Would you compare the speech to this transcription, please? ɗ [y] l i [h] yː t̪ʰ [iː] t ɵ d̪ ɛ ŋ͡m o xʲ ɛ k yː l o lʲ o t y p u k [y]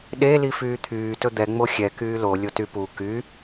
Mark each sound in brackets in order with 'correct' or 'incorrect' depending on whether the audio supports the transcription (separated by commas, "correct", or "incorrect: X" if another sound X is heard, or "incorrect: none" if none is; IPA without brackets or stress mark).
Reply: incorrect: e, incorrect: f, incorrect: yː, correct